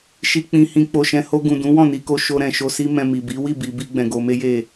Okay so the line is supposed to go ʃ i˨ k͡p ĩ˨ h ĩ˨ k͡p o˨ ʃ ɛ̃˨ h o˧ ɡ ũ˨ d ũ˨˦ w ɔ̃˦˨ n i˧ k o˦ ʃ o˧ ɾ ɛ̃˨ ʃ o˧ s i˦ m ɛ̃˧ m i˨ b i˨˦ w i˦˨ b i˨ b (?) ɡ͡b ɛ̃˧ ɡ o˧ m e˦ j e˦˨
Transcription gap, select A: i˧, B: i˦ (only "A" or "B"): A